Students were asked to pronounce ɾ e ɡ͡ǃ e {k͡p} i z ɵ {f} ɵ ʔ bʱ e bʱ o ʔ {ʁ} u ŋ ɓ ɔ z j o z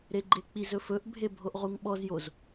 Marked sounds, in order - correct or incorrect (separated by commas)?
correct, correct, correct